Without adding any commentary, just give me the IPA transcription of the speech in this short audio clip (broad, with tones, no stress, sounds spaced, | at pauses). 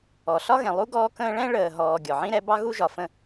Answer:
ɔ˨ ɬ ɒ˥ ɣ ɛ̃˨ lˠ u˥ ɡ ɔː˦ k ə̃ː˦ ɭ ɛ̃˥ ɭ əː˨ ɦ ɔː˨ ɡʲ ɔ˩ ʕ ĩ˥ ɾ ɛ˦ b ɑ˥ ɣ u˦ ʒ ɒ˩ f ə̃˦